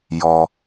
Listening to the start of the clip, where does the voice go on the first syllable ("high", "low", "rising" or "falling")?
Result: low